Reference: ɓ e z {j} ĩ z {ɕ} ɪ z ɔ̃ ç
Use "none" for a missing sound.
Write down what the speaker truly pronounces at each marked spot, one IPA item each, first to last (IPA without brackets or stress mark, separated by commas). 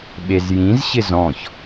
j, ɕ